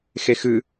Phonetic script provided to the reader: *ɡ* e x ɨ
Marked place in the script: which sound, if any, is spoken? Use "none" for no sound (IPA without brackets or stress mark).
x